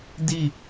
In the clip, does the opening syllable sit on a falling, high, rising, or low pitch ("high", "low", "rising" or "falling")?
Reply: falling